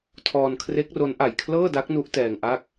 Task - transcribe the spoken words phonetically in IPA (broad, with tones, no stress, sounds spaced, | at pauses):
tʰ ɔː˧ n kʰ r e˦˥ k̚ r o˦˥ n ʔ a˨˩ j kʰ l ɤː˥˩ d a˦˥ k̚ n u˦˥ ʔ t ɛː˧ ŋ ʔ a˥˩ k̚